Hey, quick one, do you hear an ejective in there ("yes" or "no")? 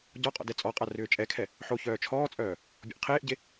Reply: yes